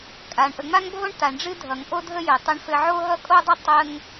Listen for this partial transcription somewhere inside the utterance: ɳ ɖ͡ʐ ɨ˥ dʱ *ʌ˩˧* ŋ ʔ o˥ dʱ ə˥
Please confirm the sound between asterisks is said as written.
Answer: yes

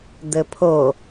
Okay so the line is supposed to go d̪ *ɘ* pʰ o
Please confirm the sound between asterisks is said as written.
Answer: yes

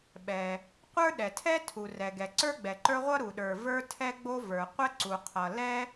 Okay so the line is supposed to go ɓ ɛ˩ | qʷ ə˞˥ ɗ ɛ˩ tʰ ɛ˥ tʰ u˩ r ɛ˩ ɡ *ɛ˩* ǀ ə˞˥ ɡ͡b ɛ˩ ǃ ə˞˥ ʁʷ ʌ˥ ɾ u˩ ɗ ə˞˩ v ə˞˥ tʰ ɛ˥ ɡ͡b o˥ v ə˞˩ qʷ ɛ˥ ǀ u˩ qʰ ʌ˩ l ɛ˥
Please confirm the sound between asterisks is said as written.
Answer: yes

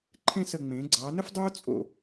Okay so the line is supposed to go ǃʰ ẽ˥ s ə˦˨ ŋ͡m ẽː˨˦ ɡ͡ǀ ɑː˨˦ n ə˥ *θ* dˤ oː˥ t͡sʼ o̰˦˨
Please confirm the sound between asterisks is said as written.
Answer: no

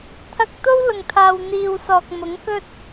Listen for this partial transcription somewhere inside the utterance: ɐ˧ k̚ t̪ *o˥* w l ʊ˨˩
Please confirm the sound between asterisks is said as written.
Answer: yes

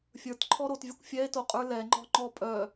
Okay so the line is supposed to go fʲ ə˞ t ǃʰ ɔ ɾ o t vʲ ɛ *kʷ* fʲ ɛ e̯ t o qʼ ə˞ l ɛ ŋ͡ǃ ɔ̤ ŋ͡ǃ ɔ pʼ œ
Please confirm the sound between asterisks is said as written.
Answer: yes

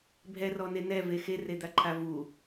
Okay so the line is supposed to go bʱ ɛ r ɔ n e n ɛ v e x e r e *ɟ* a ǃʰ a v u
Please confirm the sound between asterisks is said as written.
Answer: no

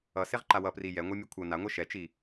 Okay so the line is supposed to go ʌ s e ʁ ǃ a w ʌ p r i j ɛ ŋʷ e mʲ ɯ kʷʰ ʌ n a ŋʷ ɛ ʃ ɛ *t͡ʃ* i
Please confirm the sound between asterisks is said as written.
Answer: yes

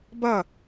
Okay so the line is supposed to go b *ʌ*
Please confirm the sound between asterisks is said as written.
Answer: yes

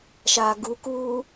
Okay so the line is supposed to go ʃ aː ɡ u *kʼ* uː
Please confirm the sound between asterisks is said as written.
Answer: no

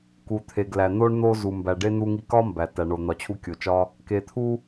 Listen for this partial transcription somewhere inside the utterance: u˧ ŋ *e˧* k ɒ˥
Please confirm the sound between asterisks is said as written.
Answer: no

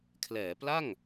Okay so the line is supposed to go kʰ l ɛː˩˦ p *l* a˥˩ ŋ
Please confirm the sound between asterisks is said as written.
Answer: yes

